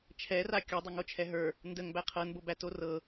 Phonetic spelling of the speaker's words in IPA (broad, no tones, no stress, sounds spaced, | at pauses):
t͡ʃʰ ɛ r a kʲ o dˤ ə ŋ o t͡ʃʰ ɛ ɦ ə˞ | n d ə ŋ b æ qʰ ɤ n b o b æ t o r ɤ